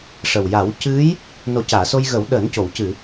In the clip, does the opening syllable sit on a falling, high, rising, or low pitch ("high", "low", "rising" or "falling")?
low